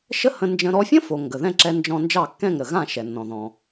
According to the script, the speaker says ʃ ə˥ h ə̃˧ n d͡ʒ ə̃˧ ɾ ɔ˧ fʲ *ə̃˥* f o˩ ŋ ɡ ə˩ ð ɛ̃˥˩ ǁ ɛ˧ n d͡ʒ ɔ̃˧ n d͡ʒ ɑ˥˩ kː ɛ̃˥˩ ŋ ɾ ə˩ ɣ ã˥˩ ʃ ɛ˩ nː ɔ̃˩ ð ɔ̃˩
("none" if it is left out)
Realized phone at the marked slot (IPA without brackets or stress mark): ə̃˥